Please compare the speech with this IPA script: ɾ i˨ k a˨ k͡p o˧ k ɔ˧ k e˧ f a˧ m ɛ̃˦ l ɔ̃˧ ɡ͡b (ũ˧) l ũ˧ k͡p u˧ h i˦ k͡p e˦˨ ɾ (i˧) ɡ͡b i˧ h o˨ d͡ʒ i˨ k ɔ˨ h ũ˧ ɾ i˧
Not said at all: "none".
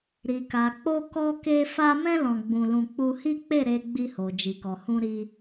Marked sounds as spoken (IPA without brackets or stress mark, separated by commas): ũ˧, e˧